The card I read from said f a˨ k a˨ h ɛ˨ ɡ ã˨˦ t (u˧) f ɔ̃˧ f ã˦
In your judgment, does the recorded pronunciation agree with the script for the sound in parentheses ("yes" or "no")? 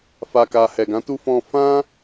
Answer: yes